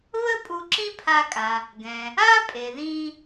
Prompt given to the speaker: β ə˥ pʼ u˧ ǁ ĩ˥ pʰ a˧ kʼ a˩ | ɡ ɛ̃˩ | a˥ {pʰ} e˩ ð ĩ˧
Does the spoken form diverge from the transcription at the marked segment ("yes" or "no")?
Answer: yes